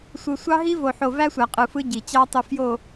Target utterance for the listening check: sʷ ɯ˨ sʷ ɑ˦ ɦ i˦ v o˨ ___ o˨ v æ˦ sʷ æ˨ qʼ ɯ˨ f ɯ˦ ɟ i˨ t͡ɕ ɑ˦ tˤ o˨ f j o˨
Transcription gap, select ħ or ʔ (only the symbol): ħ